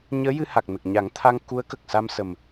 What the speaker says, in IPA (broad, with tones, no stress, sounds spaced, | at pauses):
ɲ əː˧˥ j ɨ˧ h a˨˩ k̚ n ə˨˩ k̚ ɲ a˨˩˦ ŋ t̪ʰ a˧ ŋ k u˧˥ ə̯ k ə˨˩ k̚ s a˧ m s ə˨˩ m